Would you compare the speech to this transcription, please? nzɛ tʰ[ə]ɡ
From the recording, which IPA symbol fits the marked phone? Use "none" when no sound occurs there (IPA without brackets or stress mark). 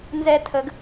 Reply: ə